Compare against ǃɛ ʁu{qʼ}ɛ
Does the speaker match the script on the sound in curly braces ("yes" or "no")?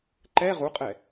yes